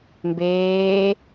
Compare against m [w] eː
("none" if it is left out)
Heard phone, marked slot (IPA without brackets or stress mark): b